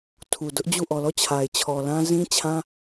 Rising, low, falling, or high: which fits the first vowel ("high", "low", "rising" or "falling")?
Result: low